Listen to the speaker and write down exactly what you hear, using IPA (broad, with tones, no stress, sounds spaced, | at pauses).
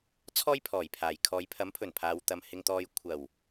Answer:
t͡sʰ ɔː˥ j pʰ ɔː˨˩ j pʰ aː˨˩ j kʰ ɔː˨˧ j pʰ ɐ˨˥ m pʰ ɵ˨˩ n pʰ aː˨ w t̪ ɐ˨ m h ɪ˧ ŋ t̪ ɔː˧ j kʷʰ ɐ˨˩ w